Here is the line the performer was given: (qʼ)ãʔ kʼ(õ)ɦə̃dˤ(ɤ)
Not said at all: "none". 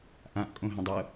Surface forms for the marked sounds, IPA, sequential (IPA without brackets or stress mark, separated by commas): ʔ, õ, ɤ